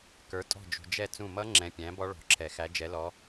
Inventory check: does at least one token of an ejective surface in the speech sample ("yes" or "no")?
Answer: yes